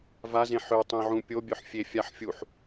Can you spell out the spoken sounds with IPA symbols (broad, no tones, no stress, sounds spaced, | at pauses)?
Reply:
v a z ẽ ħ ø tˤ ẽ ʕ ũ pʲ o bʲ œ ħ fʲ e fʲ a ħ fʲ u ħ